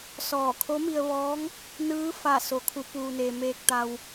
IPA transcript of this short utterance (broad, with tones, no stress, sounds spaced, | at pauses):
s ɔː˧˩ kʰ o˧˥ m i˧ ə̯ ʋ ɔː˧˥ ŋ | n ɯː˧˥ f a˧˩ s o˩˧ kʰ u˩˧ p uː˩ n e˩ m eː˧ k̚ t̪ a˧ w